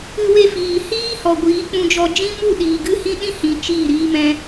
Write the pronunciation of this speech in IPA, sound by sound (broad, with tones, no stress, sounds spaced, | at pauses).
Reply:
ɨ˧ w e˧ f iː˨ h iː˦ h ɔ˨ ɡʷ iː˨˦ k͡p ũ˧ d͡ʒ ɔ˧ d͡ʒ ĩ˦ m u˦˨ ɗ iː˨ ɡ ɨ˦˨ h ĩ˦ ɗ ĩ˦ h ĩ˨ t͡ʃ iː˦˨ ɾ iː˦ m ɛ̃˦